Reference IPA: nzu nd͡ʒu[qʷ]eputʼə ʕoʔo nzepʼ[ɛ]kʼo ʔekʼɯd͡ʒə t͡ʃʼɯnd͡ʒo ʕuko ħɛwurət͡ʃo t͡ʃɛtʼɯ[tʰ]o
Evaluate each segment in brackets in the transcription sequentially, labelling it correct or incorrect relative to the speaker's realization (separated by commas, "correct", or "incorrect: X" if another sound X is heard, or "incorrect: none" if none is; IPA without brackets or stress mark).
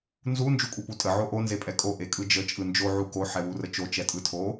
incorrect: kʷʼ, correct, correct